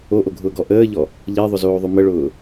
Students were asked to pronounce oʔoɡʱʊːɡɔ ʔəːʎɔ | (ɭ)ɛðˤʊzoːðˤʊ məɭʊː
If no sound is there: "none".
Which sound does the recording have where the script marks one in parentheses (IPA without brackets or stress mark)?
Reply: ʎ